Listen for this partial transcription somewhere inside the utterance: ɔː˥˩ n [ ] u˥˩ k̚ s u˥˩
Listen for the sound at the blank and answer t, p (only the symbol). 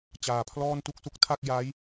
t